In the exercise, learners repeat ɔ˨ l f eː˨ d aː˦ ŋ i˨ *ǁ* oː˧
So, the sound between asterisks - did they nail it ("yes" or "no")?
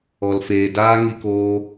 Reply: no